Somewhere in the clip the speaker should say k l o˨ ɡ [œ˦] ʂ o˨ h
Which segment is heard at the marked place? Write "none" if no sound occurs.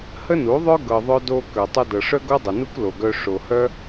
œ˧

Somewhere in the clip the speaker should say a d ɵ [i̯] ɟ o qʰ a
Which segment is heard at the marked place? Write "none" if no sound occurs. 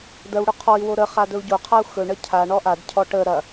u̯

